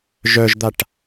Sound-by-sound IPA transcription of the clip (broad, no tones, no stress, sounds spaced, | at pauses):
ʒ œ ʒ d̪ a ʈ